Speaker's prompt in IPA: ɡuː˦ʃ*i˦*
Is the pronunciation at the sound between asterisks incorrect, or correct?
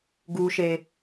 incorrect